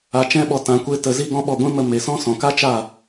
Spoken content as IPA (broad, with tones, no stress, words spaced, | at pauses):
a˧t͡ʃɛ̃˦ɓɔ˧ tã˧kʷe˦tə˧ zi˦ɡɔ̃˦ɓɔ˦˨ ɡʷĩ˦mə˧me˨sɔ̃˦ sɔ̃˨ka˦t͡ʃa˦˨